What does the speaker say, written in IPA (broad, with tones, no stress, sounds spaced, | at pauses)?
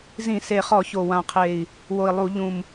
z ĩ˧˩˧ s e˨˩ χ ɔ˧˩˧ ç o˨˩ w ã˨˩ qʰ e˨˩ i̯ | w o˨˩ i̯ lˠ u˧˩˧ ʎ ũ˨˩ m